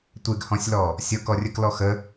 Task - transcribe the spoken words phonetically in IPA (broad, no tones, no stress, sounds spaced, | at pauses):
tʷ e ɡ h ɔ̃ sʲ l ɔ | sʲ ɤ k ɔ rʲ ə k l ɔ x ə